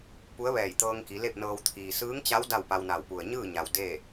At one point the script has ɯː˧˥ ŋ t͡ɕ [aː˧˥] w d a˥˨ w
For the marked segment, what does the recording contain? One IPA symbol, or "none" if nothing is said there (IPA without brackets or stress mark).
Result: a˧˥